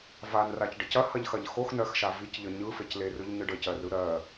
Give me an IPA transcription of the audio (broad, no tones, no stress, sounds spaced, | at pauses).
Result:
v a n r a c ɖ ə c ɐ h ɐ ʎ x ɐ ʎ x o x n ɜ x ʃ a v i c ʎ ə ɲ ɯ f e c l e r ɯ ʎ ɲ ɯ ɖ ə c ɜ r ɯ ɾ ɜ